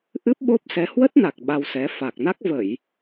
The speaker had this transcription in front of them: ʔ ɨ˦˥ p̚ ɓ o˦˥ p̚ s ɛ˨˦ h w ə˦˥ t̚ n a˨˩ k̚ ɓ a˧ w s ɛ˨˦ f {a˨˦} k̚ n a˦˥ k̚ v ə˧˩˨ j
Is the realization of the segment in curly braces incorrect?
yes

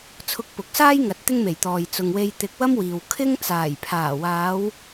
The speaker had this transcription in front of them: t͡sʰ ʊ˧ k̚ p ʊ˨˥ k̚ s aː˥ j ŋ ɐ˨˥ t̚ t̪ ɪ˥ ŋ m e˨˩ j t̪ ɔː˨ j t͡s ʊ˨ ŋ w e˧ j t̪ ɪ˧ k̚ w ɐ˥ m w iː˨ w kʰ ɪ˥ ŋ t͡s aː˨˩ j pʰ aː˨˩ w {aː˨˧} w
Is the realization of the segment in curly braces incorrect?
no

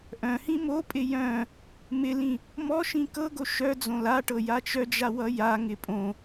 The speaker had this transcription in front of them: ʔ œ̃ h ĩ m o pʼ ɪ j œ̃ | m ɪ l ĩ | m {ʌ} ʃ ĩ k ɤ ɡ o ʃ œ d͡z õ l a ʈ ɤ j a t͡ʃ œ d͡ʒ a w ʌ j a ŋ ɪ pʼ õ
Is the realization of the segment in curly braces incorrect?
yes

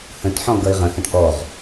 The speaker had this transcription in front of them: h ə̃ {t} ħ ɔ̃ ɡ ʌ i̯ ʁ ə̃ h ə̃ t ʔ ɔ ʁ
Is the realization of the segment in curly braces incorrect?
no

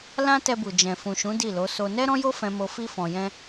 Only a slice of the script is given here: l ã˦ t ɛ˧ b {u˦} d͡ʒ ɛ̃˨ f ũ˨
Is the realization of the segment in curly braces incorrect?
yes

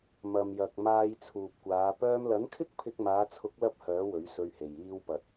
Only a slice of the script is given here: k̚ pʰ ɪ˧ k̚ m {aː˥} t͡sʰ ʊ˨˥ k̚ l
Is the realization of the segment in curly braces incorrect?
yes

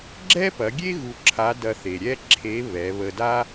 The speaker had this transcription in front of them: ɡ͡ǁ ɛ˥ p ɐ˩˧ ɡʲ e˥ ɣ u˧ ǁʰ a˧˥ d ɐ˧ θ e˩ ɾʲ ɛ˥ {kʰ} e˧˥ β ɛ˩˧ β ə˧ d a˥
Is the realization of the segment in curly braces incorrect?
yes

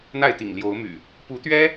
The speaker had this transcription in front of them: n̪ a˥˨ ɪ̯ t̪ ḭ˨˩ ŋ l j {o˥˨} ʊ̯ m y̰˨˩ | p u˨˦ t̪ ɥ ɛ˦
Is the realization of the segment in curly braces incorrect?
yes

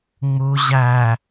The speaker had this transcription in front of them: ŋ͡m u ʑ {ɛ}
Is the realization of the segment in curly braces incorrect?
yes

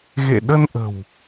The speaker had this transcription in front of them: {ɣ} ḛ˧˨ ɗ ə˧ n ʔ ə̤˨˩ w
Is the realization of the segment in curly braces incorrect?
no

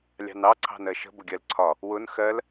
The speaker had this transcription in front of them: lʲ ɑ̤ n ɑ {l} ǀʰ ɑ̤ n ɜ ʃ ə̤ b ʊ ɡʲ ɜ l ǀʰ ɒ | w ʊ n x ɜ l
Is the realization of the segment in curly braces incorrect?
yes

